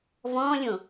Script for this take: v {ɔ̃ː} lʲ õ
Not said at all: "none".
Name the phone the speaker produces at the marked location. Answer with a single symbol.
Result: ɔ̃ː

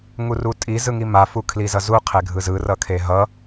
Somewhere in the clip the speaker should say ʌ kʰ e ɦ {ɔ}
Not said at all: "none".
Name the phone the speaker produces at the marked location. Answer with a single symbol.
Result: ʌ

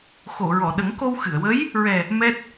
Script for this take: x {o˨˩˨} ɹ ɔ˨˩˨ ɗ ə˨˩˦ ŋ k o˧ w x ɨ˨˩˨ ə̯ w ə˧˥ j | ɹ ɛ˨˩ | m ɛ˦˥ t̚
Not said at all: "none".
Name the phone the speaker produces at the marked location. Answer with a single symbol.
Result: o˨˩˨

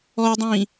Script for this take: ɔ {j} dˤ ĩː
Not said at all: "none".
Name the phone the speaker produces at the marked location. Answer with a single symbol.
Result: j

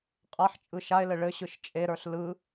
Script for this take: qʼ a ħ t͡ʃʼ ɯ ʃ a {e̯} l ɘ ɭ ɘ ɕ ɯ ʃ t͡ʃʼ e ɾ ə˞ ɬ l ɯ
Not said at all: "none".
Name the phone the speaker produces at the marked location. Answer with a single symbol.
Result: e̯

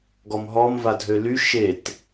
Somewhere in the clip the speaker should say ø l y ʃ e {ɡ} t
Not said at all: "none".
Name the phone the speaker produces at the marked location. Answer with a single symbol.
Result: none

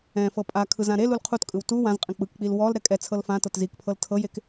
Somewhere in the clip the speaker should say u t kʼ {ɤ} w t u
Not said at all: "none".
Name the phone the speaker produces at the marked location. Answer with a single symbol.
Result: ɯ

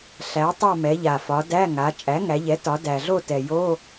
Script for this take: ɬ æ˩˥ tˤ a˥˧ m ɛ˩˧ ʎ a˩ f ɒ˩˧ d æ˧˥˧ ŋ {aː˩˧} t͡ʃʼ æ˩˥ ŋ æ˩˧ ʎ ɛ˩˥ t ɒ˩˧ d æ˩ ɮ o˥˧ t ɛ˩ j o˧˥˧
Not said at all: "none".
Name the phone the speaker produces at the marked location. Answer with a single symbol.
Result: a˩˧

